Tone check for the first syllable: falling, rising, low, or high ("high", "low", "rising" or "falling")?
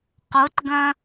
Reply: rising